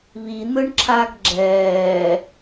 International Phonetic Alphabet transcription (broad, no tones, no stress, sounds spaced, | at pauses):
β i n̪ ɯ ɳ ǁʰ aː ɡ ɡ͡ǁ ɛː